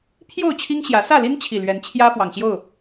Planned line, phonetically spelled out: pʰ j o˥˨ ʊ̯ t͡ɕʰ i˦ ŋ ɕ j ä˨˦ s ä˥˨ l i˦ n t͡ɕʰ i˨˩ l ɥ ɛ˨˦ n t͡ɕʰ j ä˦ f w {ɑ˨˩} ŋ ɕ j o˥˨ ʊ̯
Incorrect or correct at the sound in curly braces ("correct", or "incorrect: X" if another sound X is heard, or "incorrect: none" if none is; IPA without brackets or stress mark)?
correct